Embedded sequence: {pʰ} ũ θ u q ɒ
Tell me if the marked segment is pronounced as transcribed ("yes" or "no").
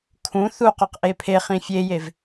no